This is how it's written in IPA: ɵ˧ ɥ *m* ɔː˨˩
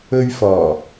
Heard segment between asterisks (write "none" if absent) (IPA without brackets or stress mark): f